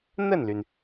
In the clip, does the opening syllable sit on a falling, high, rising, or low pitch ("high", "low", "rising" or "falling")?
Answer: falling